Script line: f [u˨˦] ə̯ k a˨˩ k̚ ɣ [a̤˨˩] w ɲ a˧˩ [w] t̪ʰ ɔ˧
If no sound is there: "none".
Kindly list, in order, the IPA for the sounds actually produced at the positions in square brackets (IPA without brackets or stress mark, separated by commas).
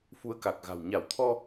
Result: u˨˦, a̤˨˩, w